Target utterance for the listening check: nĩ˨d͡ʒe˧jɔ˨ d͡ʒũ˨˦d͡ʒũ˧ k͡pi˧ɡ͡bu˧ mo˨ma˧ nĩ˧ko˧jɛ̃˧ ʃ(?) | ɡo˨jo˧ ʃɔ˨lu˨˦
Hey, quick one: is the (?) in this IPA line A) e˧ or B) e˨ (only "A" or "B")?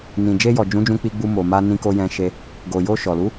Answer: A